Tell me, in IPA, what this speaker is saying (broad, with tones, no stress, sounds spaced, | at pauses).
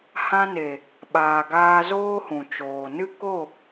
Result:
h ã˧ n e˨ | ɓ aː˨ ɡ aː˧ z oː˦ h ũ˨ t͡ʃ oː˨ n ɨ˦ k o˦˨